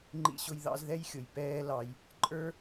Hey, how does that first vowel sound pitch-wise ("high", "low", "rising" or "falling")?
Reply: high